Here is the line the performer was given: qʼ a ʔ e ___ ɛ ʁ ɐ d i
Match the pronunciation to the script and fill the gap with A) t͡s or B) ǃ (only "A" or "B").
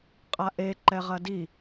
B